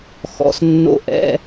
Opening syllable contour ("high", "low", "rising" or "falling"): rising